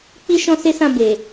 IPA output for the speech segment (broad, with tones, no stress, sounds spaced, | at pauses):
k͡p i˦ ʃ ɔ̃˦ s e˦ s ã˦˨ b e˨